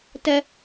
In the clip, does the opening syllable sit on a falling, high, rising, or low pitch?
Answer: high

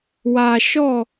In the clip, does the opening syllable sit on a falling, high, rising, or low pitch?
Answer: low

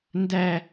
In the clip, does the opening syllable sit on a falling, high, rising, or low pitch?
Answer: high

